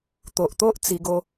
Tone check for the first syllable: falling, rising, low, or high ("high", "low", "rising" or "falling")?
low